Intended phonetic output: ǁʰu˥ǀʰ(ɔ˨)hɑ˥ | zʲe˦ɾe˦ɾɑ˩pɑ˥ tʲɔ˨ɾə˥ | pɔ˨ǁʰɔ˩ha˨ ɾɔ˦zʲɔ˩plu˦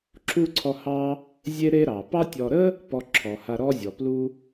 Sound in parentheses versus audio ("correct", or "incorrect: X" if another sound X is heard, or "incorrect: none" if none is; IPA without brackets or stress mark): incorrect: ɔ˦